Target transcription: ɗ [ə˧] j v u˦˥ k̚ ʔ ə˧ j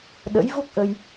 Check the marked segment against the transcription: incorrect: ə̰˧˥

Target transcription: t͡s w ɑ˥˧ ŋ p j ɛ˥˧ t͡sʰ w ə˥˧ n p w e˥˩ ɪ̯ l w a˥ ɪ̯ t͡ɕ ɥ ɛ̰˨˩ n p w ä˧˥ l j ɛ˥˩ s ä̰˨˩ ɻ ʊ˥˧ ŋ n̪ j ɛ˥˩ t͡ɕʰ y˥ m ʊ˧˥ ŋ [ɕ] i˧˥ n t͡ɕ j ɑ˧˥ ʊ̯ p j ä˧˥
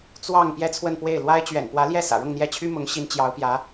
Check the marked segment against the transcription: correct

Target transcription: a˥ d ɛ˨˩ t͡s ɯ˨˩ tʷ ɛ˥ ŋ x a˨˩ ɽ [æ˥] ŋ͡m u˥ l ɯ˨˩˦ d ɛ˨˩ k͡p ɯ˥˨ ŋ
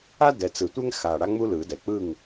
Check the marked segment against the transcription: incorrect: a˥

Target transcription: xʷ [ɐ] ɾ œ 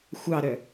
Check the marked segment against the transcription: incorrect: ɑ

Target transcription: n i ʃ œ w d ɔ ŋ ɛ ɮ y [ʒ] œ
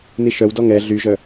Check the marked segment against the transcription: correct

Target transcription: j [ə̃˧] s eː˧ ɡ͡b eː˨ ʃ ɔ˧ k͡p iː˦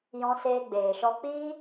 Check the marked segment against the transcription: incorrect: ɔ̃˧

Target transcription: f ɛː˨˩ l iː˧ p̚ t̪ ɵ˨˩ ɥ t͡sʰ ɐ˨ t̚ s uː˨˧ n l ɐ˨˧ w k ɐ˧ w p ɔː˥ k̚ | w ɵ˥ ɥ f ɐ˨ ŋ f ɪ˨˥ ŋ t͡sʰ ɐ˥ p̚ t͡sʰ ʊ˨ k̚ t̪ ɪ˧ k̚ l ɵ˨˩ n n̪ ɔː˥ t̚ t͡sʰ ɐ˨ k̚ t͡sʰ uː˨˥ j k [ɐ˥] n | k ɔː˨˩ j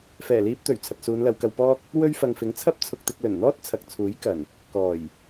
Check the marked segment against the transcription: incorrect: ɐ˨˩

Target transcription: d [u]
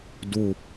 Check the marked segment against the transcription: correct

